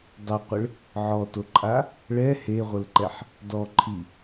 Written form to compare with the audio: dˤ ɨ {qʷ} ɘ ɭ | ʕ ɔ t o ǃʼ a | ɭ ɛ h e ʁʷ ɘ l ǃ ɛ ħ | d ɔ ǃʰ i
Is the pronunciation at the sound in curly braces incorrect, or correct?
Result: correct